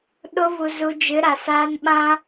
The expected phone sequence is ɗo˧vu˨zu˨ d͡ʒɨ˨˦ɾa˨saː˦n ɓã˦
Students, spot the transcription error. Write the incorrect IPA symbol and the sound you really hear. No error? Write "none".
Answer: none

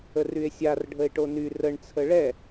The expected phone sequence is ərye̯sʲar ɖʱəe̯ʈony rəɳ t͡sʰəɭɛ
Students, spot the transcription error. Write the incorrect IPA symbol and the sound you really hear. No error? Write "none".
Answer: none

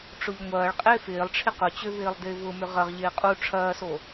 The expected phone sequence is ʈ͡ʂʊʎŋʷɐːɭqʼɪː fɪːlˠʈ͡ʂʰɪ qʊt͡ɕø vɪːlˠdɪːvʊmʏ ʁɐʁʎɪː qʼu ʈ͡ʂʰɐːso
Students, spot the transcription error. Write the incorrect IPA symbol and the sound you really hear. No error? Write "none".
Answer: none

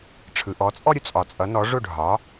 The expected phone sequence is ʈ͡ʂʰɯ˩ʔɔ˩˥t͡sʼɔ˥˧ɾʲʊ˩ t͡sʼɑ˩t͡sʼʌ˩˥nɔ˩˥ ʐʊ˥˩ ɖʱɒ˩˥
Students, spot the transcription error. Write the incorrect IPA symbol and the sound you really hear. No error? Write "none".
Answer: ɑ˩ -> ɒ˩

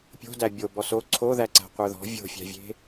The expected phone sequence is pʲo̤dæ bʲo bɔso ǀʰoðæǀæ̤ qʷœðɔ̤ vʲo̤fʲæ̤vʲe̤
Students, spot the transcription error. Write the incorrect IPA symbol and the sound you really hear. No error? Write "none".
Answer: none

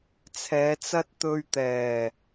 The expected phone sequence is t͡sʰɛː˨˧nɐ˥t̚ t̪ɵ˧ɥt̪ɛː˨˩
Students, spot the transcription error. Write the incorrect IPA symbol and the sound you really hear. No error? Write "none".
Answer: n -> t͡s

